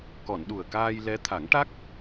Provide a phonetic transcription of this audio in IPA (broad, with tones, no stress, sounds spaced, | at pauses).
k ɔ˨˩˨ n ɗ u˨˩ ə̯ k aː˧ j l ɛ˧˥ t̪ʰ a˨˩˦ ŋ ʈ a˦˥ k̚